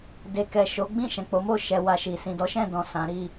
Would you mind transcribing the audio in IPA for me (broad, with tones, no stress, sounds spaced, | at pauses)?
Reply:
d e˨ k ɛ˨ ʃ o˨˦ ɡ͡b ĩ˦˨ ʃ ɛ̃˨ k͡p o˨˦ m o˦˨ ʃ ɛ˧ w a˧ ʃ i˨ s ĩ˨ d ɔ˨˦ ʃ ɛ̃˦˨ d ɔ̃˨ s ã˨˦ ɾ i˦˨